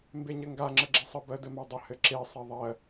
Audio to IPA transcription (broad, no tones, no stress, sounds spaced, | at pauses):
m b e ɲ ɘ ŋ ɡ a ŋ͡ǁ ə ɡ͡ǁ e sˤ ə b ɜ d ɘ m a dˤ ə h ɘ ǁ e sˤ ɘ ðˤ ɜ